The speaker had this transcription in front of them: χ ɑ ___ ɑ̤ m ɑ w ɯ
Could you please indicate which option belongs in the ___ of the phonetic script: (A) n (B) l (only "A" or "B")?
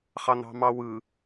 A